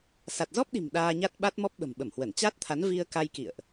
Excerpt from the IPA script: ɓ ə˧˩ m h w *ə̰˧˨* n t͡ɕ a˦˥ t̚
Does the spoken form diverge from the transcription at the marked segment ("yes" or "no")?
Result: yes